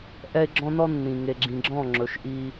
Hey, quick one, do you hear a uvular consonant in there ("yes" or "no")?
no